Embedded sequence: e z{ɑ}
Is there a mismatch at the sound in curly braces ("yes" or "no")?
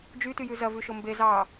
no